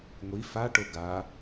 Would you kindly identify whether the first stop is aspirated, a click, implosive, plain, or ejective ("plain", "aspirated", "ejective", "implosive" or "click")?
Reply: plain